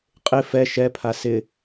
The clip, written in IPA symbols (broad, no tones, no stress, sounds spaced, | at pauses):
qʼ ɪ f ɛ ʃ ɛ pʰ a s ɪ